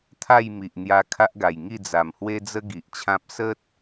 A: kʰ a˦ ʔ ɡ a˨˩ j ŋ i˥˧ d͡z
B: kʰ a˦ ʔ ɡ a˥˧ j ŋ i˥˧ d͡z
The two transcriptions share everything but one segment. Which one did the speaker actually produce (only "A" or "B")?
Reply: A